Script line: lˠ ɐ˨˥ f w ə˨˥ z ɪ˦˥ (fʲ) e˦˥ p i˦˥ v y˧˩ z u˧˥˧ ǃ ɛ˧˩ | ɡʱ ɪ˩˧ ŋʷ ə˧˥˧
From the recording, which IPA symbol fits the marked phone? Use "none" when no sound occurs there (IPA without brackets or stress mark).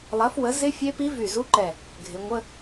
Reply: fʲ